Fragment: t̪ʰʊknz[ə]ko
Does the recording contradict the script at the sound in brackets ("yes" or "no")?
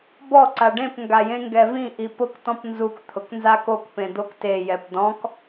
yes